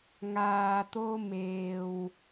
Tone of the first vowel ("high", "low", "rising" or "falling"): low